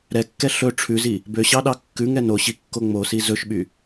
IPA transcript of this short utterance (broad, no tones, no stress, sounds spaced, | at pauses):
ɾ ɛ kː ɛ ɬ ɵ ʈ͡ʂʰ ʉ z i | b ø ɕ ɑ ɗ ɑ kː ʉ ŋ ɛ n o ɕ i kː o ŋ͡m o s i z ɵ ʃ ɓ y